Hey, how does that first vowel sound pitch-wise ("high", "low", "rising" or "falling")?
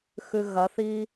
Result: low